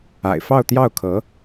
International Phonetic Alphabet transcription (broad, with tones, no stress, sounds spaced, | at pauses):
a̰˨˩ ɪ̯ f ɑ˥˧ ʊ̯ t̪ j ɑ˥˩ ʊ̯ kʰ ɤ˧˥